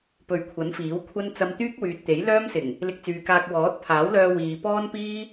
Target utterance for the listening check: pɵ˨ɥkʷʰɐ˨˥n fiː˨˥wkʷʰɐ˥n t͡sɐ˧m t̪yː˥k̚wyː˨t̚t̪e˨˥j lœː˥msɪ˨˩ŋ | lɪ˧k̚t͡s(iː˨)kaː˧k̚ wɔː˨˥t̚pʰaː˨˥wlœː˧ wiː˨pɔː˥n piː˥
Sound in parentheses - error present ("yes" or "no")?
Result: yes